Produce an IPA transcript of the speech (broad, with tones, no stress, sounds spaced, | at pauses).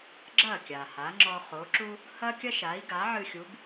ɡ͡ǁ ɐ˥˩ kʲ a˩ h a˩˥ ŋ͡ǁ ɔ˧ χ o˩˥ ǁ u˥ | h ɐ˥ kʲ ɐ˥ ʃ a˩˥ i̯ ɡ a˩˥ ʕ ɨ˧ xʲ u˩˥ b